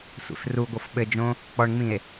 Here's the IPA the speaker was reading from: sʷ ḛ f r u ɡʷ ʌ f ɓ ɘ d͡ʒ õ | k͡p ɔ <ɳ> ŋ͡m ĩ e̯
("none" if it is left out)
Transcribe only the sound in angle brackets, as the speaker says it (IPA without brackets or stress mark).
ɳ